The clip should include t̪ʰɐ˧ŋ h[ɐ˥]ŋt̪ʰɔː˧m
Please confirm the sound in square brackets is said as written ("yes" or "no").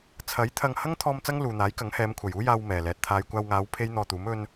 yes